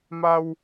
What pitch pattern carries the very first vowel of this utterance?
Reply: low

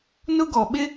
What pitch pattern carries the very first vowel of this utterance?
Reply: high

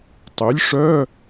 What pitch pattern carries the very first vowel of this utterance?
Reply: rising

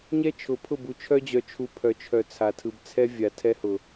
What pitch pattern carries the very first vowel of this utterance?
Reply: high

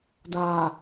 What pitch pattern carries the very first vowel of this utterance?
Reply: low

